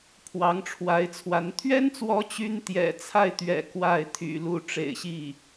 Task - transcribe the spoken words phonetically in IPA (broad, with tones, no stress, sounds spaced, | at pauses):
pʰ w ɑ˧˥ ŋ ʈ͡ʂʰ w a˧˥ ɪ̯ t͡sʰ w a˧˥ n t̪ʰ ɥ ɛ˥ n t͡s w ɔ˧˥ t͡ɕ y˥ n t̪ j ɛ̰˨˩ t͡sʰ a˥˩ ɪ̯ t̪ ɥ ɛ̰˨˩ k w a˥˩ ɪ̯ t̪ʰ y̰˨˩ l u˥˩ ʈ͡ʂ ḛ˨˩ ɪ̯ ɕ i˥˩